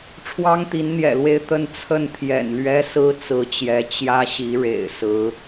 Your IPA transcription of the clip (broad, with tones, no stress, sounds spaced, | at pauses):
ʈ͡ʂʰ w ɑ˥ ŋ t̪ i˧˥ n n̪ j ɛ̰˨˩ l w e˥˧ ɪ̯ t̪ ə˥˧ n t͡sʰ ə˥˩ n t̪ʰ j ɛ̰˨˩ n l ɥ ɛ˥ s ɹ̩˥ t͡s ɹ̩˧˥ t͡ɕ j ɛ˧˥ t͡ɕ j ä˥ ɕ i˧˥ ɻ ḛ˨˩ ɪ̯ s ɹ̩˧˥